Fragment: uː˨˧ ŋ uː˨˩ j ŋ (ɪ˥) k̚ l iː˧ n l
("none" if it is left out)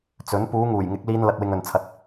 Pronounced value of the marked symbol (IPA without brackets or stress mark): ɪ˨˥